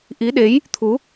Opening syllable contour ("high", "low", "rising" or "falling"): rising